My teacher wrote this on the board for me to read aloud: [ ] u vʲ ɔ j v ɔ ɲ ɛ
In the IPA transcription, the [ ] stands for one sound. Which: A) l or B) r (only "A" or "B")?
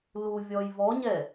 A